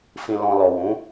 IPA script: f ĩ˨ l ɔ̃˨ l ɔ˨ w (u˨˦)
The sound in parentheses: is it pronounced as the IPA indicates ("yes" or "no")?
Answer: no